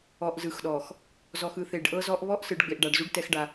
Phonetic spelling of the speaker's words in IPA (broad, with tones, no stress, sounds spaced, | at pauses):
ɔ˨ ʔ z ɯ˨ x ɗ ɔ˨ x | z ɔ˨ x ɯ˨ θ e˨ ɖ ʔ ɤ˦ z ɔ˦ ʔ β ɔ˦ ʔ s ɯ˨ ɖ ɡ͡b e˨ ʔ ɖ a˨ ɖ z u˦ ɖ t ɛ˦ x ɖ a˦